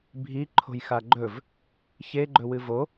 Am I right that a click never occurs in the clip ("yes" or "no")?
no